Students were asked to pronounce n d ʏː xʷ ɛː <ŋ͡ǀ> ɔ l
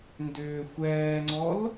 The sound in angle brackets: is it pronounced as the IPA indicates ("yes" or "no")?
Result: yes